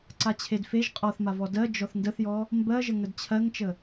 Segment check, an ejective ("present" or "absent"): present